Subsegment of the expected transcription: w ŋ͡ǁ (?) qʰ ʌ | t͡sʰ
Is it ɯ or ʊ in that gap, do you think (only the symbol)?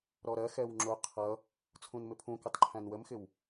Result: ʊ